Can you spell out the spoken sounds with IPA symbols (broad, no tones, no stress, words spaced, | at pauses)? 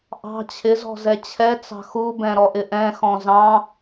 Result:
ʔɑ̤ t͡ɕʰɪzɔ̤ zɛt͡ɕʰɛt͡sɑ̤ xubɛ̃ ɾɔʔɪʔɛ̃xɔ̃ zɑ̃